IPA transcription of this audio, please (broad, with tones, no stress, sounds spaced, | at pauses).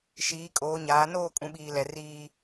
ʃ iː˨˦ kʼ oː˨˦ ɲ aː˨˦ n oː˦˨ kʼ ũ˨ ɓ iː˨ l ɛ˨ r iː˦